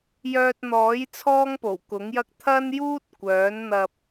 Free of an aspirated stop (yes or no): no